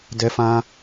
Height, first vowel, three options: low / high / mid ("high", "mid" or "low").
mid